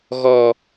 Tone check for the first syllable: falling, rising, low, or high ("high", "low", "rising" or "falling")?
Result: high